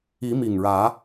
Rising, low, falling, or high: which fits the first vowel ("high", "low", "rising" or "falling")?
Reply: rising